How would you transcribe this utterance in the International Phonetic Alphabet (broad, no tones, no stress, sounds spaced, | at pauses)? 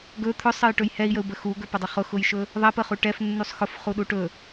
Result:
ɡ ɵ t̪ʰ ɵ sˤ ə j ʈ ɵ j h ɛ i̯ j ə u̯ b ə x u ɡ ɵ p ə dˤ ə χ ʊ x ʊ j ʃ ɵ | ðˤ ɛ p ə χ u ʈ ɛ f nː u sˤ x ʊ f χ u ɗ u ʈ ɵ